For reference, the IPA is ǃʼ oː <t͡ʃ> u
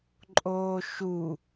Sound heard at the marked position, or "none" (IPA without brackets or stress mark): ʃ